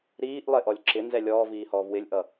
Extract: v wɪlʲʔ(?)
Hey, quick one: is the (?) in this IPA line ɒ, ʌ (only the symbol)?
ʌ